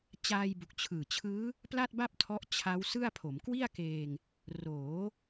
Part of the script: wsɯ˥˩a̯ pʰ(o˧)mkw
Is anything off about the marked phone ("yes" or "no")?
yes